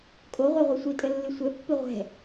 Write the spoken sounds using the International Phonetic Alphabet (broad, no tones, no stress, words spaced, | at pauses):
kʼoʁʷɛʁʷɨ sʷitʼəlːɨ sʷɛpːɨ ʁʷɛ̤